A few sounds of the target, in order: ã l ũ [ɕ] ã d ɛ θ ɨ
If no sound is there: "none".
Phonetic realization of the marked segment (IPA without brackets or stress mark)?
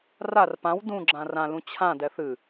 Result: t͡ɕʰ